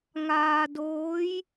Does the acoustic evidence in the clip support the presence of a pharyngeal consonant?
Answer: no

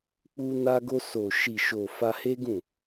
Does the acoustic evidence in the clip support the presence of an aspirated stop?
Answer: no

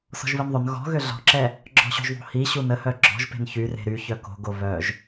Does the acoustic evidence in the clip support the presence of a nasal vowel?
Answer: no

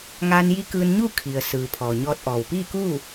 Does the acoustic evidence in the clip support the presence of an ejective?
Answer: no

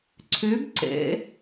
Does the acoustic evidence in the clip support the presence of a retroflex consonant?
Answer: no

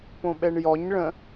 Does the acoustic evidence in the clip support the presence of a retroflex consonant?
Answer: yes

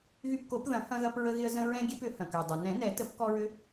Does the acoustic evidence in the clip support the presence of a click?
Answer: no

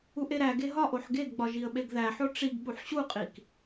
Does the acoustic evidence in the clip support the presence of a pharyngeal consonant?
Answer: yes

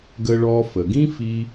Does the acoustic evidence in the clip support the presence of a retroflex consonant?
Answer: yes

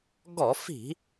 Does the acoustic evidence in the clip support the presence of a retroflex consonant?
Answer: no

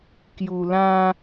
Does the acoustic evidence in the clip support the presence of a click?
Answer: no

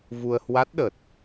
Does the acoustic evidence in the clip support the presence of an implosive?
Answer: yes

